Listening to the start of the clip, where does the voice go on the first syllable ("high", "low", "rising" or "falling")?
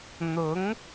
rising